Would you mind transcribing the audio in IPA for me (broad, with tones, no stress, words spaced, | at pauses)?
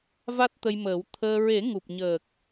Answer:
va˦˥t̚t̪ə˧jməː˨˩˦w t̪ʰəː˧ ɹe˨˩˦ŋu˨˩p̚ɲəː˨˩k̚